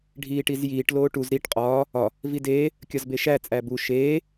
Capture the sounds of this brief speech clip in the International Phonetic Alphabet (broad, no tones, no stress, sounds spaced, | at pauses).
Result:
ɖʱ iː ʈ i z j iː ʈ l oː ʈ u z ɾ i ʈ qʼ ɒː | ɒ | v i d eː | kʲ ɒ z b e ʃ æ t͡sʼ æ b u ʃ eː